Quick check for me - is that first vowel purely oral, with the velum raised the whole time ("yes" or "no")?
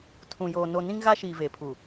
no